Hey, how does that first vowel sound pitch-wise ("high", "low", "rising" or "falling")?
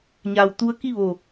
low